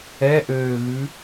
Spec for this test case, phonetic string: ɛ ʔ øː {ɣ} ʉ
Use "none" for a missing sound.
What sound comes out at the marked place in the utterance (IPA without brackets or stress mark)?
ɣ